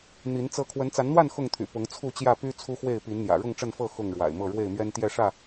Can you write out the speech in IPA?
n̪i˨˦n t͡sɤ˥˨ kʰwə˨˦nt͡sa˨˦nn̪wa˥˨n xʊ˥˨ŋt̪ʰy̰˨˩ pʊ˨˦ŋt͡sʰu˥˨t͡ɕjä˥˨ py˦ t͡sʰu˦xwe˥˨ɪ̯ pi˨˦nn̪jä̰˨˩ ɻʊ˥˨ŋʈ͡ʂə˥˨nfɤ˥˨ xʊ˥˨ŋɻwa̰˨˩ɪ̯mɤ˥˨ ɻwe˥˨ɪ̯mɥɛ˦nt̪jɛ˥˨ʂä˥˨

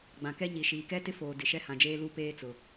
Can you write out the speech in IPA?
ɡ͡bã˨kɛ˦ ɲi˨ʃiː˨kɛ˦ tɪ˦foː˨ dɪ˨ʃɛ˦hã˨d͡ʒeː˦ lu˦peː˦t͡sʊ˨

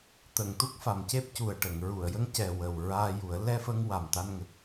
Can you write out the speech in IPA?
t̪ə˨˩˨ŋ t̪u˦˥k̚fa˨˩mce˦˥p̚cu˨˩ə̯ ʈə˨˩˨ŋɹu˨˩˨ə̯jə˧ŋ cɛ˨˩ wə˨˩wɹaː˧ ju˨˩˦ə̯ lɛ˧fə˧ŋ wa˨˩mt̪a˧nŋə˨˩k̚

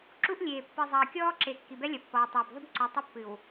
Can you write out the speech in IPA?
ǁu˦ʔlʲeː˨ pːɨ˨zˤɐː˨ kʲɔː˦ǁe˨ kːi˨bɛ˦lʲɐ˨ pːɔː˨tˤɐː˨b ðˤu˦bǀu˨tˤɘ˦pːɨ˨w

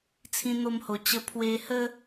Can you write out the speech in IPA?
t͡sʰĩ˧n̪o˧mho˨˩ t͡ɕə˧ pʰwe˧hə˦

